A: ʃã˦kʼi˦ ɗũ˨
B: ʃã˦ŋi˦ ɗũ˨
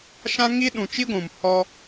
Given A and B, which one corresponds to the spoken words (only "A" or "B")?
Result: B